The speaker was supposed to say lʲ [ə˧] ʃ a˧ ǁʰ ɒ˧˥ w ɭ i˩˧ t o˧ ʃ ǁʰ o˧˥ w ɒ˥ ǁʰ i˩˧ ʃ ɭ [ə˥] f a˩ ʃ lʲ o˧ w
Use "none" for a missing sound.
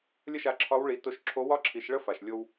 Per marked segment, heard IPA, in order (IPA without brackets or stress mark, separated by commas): ə˥, ə˥